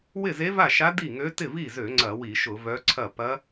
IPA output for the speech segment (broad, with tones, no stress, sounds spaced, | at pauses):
w ɪ˥˩ z e˧˥ v a˥˩ ʃ a˧˥ d i˥˩ ŋ ø˧˥ t ɪ˥˩ v i˥˩ z ø˧˩˧ ŋ͡ǀ ɐ˧˩˧ w i˧˩˧ ʃ ʊ˧˩˧ v œ˧˥ ǀʰ ɐ˥˩ p ɐ˧˥